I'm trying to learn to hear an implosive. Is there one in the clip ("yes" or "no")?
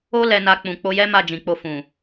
no